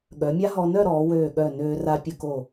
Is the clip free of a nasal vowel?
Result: yes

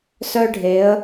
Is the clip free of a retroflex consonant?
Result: no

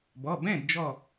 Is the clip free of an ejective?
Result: yes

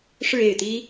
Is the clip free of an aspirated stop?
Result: yes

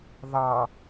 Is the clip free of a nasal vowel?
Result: yes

